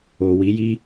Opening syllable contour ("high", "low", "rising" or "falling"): low